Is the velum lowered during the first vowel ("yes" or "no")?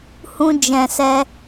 yes